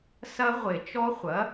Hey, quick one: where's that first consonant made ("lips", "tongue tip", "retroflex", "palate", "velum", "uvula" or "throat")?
tongue tip